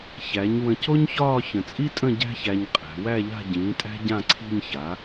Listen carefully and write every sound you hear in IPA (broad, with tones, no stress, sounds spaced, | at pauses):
ç æ˩˥ ɲ w ə̃˧ c o˥ ɲ ç ɒː˥˧ ç ə̃˨˩ t͡sʼ i˥ tʼ ə̃˥˧ ɟ æ̤˥ ç æ˧ ɲ qʼ æ̤˩˧ w æ˥˧ ʎ a̤˥˧ ɟ ĩː˩˥ tʼ æ̤˥ ɟ ã˥˧ ǀʰ i̤˥˧ ɲ ç a˩˥